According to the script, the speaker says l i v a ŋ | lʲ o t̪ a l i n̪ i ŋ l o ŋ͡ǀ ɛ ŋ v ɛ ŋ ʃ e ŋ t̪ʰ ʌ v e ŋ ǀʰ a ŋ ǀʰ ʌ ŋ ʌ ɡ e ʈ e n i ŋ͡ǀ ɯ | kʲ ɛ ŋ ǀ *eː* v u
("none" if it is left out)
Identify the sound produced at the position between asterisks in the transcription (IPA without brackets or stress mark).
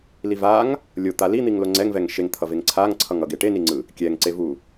e